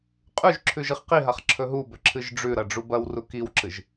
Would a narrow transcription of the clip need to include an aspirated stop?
yes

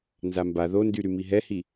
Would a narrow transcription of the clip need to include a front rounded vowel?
yes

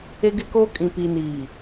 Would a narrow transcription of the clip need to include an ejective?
yes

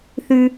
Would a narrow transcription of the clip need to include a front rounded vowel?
no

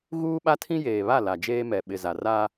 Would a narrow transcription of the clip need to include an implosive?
yes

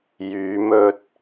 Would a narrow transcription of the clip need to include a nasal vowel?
no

